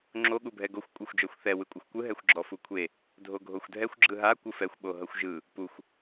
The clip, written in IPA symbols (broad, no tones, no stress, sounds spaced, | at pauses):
ŋ͡ǁ o ɠ u bʱ ɛ ɡ o xʷ kʷʼ ɯ xʷ d͡ʒ ɔ xʷ θ ɛ w ɯ kʷʼ ɤ xʷ kʷ ɯ ɦ ɛ xʷ ɡ͡ǁ ɔ f u kʷʰ e | dʱ o ɡʱ o xʷ dʱ ɛ xʷ ɡ͡ǁ ɯ ɦ a kʷ ɯ f ɛ xʷ ɓ o ɦ ɤ xʷ ʒ ɯ | p u xʷ